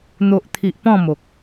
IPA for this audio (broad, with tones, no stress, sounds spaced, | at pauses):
n̪ o˨ ʔ t̪ʰ i˨ ʔ p ɔ̃˥˧ m o˨ k̚